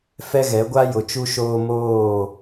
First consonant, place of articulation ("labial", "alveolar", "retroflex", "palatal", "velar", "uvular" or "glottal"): labial